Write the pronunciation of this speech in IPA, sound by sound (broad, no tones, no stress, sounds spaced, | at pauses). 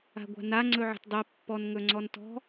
a̤ ɡʷ a̤ n a ŋ͡ǀ ɵ ʕ ə̤ t dˤ i pː ɔ n ŋ ɵ ŋ͡ǀ ɔ n t ɔ̤